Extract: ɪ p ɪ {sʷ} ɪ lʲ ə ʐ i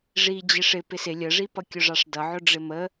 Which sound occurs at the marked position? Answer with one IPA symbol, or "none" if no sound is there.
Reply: s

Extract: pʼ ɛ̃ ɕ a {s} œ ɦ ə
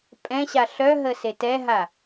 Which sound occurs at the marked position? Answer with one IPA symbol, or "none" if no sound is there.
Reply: ɬ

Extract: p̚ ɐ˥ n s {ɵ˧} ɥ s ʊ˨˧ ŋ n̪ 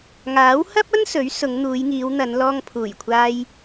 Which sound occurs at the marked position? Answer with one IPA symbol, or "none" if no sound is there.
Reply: ɵ˨˥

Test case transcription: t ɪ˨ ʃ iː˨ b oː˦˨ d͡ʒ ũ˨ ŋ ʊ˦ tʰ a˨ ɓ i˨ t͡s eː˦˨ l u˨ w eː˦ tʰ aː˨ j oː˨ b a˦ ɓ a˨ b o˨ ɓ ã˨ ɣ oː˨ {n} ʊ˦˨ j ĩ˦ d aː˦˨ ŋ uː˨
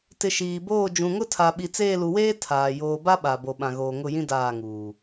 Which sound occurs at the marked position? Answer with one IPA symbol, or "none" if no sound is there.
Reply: ŋ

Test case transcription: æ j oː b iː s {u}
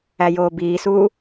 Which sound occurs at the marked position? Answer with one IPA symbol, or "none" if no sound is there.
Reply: uː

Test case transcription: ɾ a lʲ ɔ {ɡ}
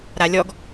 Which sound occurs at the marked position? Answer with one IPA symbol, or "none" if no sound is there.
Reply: ɡ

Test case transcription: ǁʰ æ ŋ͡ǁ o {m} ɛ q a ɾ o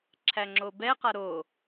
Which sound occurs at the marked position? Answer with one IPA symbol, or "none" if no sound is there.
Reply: b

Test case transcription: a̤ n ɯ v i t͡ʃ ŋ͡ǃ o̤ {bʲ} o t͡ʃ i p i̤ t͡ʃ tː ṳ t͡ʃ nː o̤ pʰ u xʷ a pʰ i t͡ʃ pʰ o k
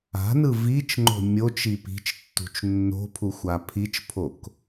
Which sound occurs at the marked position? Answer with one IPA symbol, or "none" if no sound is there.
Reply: mʲ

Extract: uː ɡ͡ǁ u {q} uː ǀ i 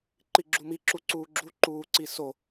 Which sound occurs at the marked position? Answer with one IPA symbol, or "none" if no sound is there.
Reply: ǃ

